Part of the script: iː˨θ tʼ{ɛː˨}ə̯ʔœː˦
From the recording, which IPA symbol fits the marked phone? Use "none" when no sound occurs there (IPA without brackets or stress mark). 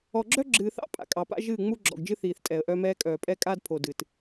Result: ɛː˨